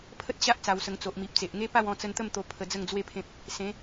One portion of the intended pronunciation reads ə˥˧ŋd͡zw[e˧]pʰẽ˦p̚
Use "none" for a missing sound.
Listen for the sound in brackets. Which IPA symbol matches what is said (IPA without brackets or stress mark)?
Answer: e˥˧